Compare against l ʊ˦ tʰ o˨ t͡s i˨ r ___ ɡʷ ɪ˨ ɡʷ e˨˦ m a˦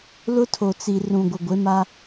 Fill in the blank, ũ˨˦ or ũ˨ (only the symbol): ũ˨